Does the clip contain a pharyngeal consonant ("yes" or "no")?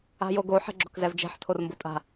yes